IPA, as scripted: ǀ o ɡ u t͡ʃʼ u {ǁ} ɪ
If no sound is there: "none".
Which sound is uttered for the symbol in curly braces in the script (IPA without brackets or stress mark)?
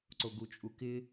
k